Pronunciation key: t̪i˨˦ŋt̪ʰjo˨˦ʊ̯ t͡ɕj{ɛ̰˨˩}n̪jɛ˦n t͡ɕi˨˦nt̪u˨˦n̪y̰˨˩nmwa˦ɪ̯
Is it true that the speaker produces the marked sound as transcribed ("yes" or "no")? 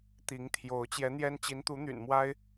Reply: no